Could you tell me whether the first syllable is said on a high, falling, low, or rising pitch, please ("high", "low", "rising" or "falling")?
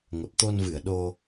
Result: low